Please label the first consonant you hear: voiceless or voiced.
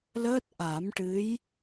voiced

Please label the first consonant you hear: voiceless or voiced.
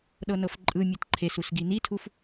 voiced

